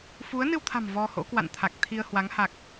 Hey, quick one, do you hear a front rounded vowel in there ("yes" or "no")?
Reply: no